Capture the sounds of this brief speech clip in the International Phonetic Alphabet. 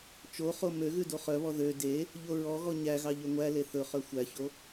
t͡ʃoχo møɣʉ doχœβɔ ðø de | ʎoɹɔɣɔ ɲæɣɑ ʎøŋʷæle θɵχœ xʷæço

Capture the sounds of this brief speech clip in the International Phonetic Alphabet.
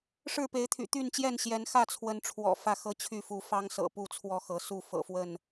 ʂɻ̩˥˨pe˨˦ɪ̯t̪ʰy̰˨˩ t̪y˥˨nt͡ɕjɛ˥˨nɕjɛ˨˦n xä˥˨t͡sʰwə˨˦nʈ͡ʂʰwɔ̰˨˩ fä˥˨xɤ˥˨t͡ɕʰy˥˨fu˨˦ fɑ˦ŋsɤ̰˨˩ pu˥˨t͡sʰwɔ˥˨xɤ˨˦su˥˨ fɤ̰˨˩fwə˥˨n

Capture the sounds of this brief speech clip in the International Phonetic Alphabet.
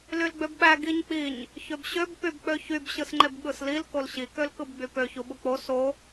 lylɡ͡bøbɓæ ɡiɲk͡piɲ | çøbɕøb pybk͡pøçyb ɕɯsŋ͡ǃebɠɯslil kolɕi kølkɯbɡ͡bypø çuɓuk͡po so

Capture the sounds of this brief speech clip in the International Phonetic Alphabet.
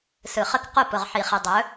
sɯ˨χə˦k qʊ˦˨pʊ˨ʁ ħi˨χi˨dˤɵ˨˦

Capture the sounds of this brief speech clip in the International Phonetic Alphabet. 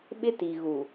ɓɪ˦ti˨ɣu˨

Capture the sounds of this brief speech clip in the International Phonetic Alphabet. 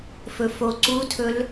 fɵfoǀutʰɵl

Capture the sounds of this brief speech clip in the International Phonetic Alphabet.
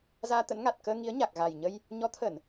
zaː˧t̪ə̰˧˥nŋa˨˩t̚ kəː˧ ŋi˨˦ə̯ɲa˨˩k̚ ɣa˨˩jɲə˧j | ɲɔ˨˦t̪ʰə˧˩˨n

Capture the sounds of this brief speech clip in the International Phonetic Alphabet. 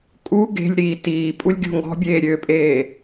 kʼu ɡe̤lʲɾiː tiːpʼulʲ ɡʲo̤ŋɡɔ̤bʲeː ɾʲøpʼeː

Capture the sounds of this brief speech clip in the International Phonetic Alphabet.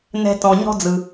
nɛ̤˦tɔ̃˨ ɲɔ̤˥d͡zɯ˨

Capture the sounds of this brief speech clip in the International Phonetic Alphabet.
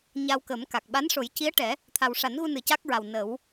ɲa˧wkə˨˩˦mka˨˩k̚ ɓa˧˥nʂo˨˩˦jci˧˥ə̯ʈɛ˨˩˦ | t̪ʰa˨˩wʂa˨˩˦nɣu˧ nɨ˨˩ca˦˥k̚ɹa˨˩w nə˨˩˦w

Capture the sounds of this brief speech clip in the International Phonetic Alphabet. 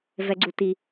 vɛ˧ɡ͡ǀu˧ti˧

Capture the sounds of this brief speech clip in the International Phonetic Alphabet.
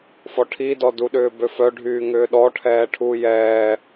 fɔʈʰidɔ duɗʏːbøfœ ɖʱyːŋʏːɗɔʈʰɛː ʈʰuːjɛː

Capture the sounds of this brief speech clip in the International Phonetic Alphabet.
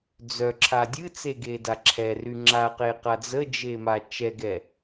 d͡zœǁʰa dʲɨt͡seɡeda ǁʰɛry ŋ͡ǁaqeqa d͡zəd͡ʒema t͡ʃɛɡɛ

